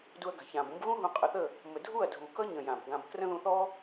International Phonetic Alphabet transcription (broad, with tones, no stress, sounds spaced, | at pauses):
d u˧ ɐ̯ ɡ a̤˨ ç ãː˨ b ũ˦ b ɣ ũ˦ ɦ ũ˧ qʼ ə˧ θ ə˦˨ | m ə˨ dʱ u˦˨ ɐ̯ dʱ uː˨ k ʌ˦ ɲ ə̃˨ j ã˨ b ɡ ã˧ b k r ə̃˦ ð ũ˧ θ ɔ˦